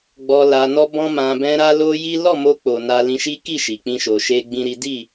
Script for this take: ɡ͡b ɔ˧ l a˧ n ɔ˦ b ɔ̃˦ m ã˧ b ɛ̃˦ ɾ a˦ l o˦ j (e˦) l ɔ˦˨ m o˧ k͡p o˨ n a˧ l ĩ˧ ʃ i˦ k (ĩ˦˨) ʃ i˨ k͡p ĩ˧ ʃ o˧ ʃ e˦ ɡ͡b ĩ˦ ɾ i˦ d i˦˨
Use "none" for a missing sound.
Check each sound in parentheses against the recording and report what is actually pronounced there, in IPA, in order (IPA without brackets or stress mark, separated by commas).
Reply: i˦, i˦˨